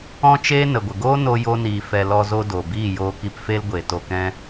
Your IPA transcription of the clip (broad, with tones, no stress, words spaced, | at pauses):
ɔ̃˦t͡ʃeː˦ nə˨ɡʷə˨ɡoː˦ no˧ jo˦niː˧ fɛ˧ lɔ˧zo˧do˨ biː˦˨joː˧ki˧pfe˦l ɡʷe˨ to˧kɛ̃˦